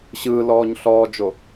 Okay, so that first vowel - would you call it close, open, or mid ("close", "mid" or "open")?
close